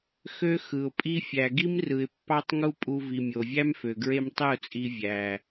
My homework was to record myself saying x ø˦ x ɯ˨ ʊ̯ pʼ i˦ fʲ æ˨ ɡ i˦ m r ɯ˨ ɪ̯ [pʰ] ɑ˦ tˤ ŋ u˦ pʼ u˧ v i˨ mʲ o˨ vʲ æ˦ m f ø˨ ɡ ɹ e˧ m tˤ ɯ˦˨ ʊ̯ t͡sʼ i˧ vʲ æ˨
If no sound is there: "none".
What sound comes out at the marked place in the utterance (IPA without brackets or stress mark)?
pː